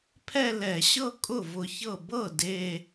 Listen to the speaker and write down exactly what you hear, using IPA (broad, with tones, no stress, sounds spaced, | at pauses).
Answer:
pʰ ɛ˥˧ l ɛ˧˩˧ ɕ ɤ˥˧ kʼ ʊ˥˩ v ʊ˧˩ ç ɤ˥˩ b ɤ˥˩ d e˥˧